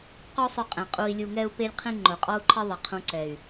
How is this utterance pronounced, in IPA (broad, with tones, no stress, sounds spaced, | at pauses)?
q o˦ sˤ ʊ˧ qʼ ẽ˨ qʼ u˧ i̯ lʲ u˧ ŋ ɛ˦ u̯ p e˦ lʲ qʰ ĩ˦ ŋ͡ǃ ʊ˨ qʼ ɔ˦ u̯ ǃʰ ɪ˦ ðˤ ɪ˨ qʰ ũ˧ ǀ ɛ˨ y̯